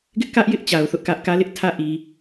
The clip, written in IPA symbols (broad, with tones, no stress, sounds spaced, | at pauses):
ɡ ɪ˦ ʔ k ä˦ ʔ j ɪ˦ ʔ t͡ɕ a˨ ʊ̯ θ ʊ˦ ʔ k ä˦ ʔ k ä˦ l ɪ˦ ʔ tʰ ä˦ ʔ i˨